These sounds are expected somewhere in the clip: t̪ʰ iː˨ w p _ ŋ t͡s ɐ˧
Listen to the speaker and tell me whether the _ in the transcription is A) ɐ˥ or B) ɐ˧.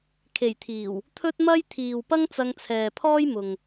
A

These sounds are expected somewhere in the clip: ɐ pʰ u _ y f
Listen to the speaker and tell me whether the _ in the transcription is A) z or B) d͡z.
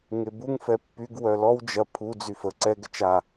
B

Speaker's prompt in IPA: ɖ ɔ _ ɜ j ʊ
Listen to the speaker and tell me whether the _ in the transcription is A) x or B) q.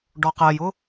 B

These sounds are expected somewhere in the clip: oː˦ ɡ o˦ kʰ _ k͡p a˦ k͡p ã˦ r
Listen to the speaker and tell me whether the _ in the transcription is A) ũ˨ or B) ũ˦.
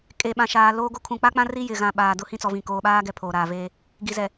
A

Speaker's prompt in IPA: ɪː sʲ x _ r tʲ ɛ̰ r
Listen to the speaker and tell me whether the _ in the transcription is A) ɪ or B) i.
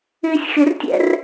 A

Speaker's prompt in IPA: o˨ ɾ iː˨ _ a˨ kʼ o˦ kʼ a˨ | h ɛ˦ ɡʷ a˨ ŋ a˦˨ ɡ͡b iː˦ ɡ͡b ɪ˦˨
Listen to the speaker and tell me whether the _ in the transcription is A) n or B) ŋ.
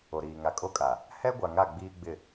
B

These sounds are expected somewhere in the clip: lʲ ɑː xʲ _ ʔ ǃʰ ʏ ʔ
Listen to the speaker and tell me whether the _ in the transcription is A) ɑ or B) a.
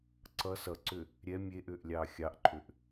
A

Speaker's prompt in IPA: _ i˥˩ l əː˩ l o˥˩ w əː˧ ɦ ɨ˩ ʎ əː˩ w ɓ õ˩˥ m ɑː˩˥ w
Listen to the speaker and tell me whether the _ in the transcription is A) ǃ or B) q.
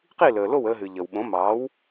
B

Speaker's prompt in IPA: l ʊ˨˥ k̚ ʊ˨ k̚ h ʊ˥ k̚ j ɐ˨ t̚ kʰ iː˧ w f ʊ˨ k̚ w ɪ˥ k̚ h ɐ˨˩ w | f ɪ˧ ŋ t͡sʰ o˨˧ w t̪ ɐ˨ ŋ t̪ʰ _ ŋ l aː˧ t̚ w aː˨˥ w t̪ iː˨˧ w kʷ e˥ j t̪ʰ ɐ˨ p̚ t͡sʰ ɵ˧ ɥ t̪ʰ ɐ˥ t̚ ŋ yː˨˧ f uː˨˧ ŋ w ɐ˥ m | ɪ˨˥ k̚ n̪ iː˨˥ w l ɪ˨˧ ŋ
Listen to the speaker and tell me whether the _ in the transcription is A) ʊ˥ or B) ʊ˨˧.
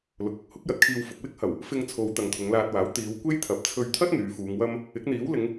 B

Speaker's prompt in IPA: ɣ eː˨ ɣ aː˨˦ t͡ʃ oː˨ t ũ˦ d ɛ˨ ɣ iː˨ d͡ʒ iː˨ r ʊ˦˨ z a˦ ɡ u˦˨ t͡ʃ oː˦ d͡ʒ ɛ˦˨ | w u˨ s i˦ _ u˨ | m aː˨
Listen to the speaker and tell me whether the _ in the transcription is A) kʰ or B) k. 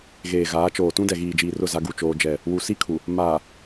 A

